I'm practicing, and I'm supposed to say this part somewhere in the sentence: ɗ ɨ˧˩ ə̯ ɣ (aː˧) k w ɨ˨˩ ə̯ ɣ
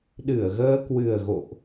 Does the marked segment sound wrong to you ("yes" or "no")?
yes